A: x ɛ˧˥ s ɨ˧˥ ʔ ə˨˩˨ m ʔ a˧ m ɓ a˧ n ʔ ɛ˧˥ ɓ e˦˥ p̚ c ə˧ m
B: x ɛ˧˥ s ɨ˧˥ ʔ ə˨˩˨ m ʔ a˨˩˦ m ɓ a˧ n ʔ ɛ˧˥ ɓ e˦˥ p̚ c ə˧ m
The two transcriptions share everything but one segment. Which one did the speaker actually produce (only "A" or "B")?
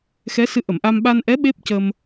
A